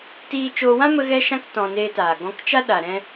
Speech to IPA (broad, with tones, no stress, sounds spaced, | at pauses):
t iː˧ t͡ʃ oː˧ w ã˦ m ə˧ ɣ ɛ˧ ʃ ã˧ k t ɔ̃˧ n eː˧ t aː˨ ɡ ɔ̃˧ k t͡ʃ a˦ ɗ a˨ ɾ ɛ̃˧